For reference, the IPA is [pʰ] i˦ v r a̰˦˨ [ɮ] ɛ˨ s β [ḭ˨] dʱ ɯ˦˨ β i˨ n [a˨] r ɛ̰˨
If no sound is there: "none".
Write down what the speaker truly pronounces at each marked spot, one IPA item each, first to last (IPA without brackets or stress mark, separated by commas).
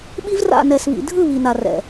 ɓ, n, ḭ˨, a˨